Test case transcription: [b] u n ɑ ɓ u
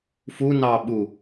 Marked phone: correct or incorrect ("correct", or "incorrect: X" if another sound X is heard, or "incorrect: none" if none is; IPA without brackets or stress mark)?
incorrect: f